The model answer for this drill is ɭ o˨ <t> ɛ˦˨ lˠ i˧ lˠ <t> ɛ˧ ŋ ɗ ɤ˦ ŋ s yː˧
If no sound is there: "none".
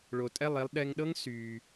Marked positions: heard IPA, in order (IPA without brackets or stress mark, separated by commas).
tʼ, ɗ